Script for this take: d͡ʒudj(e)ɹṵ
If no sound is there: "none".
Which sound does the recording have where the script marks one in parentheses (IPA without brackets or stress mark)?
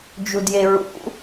e